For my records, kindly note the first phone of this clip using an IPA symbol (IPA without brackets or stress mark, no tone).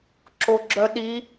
ǁ